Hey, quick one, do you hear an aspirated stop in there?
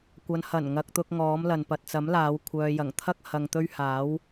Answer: yes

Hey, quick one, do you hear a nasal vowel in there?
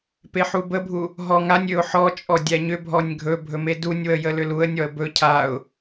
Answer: no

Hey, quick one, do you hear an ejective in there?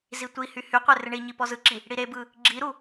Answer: no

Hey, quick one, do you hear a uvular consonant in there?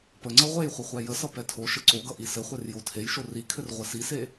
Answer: yes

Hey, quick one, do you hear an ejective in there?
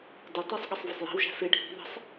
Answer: no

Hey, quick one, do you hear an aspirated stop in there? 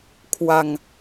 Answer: yes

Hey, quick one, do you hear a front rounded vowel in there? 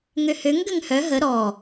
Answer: yes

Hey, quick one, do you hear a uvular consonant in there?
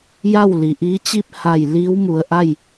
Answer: no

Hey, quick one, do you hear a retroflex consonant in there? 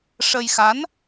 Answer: yes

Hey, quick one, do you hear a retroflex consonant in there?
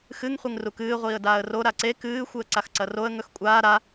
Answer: no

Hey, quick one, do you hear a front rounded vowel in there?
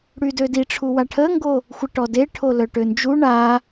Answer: yes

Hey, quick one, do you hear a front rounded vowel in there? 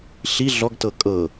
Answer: no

